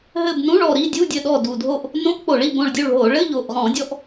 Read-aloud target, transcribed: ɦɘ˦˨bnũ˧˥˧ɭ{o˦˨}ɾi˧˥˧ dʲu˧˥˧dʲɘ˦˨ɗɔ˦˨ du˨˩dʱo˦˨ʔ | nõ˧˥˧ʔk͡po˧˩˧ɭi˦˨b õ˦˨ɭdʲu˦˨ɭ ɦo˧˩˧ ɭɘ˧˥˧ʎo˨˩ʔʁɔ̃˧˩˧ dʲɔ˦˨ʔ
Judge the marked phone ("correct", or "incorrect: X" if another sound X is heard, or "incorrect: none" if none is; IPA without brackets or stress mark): incorrect: ɔ˦˨